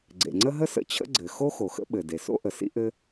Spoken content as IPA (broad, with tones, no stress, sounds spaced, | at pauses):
ɡ͡ǀ ḛ˩ ŋ͡ǀ ə˥ ɦ ə˥ s ə̰˥ t͡ɕʰ ə̰˥ ɡ͡ǀ ɘ˩ x o˥ x o˩ x ə̰˥ ɓ ɘ˩ d e˩ s o̰˥ ʔ ə˩ s ḭ˥ ʔ ɘ˥